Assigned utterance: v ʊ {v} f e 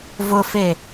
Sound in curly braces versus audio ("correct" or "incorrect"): incorrect